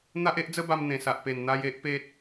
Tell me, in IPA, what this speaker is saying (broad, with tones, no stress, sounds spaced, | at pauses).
n̪ a˦ ʔ e˦ ʔ d͡z ə˦ b a˧ m n̪ ẽ˨˩ s a˨ ʔ p e˨˩ n n̪ a˦ j e˦ ʔ p e˦ t̚